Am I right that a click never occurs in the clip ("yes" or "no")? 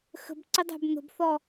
no